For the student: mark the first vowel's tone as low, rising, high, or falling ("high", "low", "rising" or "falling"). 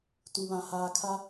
low